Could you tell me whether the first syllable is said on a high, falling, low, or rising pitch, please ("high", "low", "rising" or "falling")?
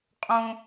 high